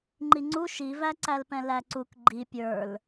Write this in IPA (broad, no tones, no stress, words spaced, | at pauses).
ŋ͡ǃiŋ͡ǀu ʃivæǀælpɛ̃ læǀuk ɡ͡ǃi pʲə˞l